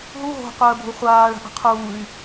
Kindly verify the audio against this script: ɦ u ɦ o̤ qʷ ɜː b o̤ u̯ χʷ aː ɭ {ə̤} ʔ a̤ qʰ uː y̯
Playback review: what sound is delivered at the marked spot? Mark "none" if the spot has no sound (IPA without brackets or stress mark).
a̤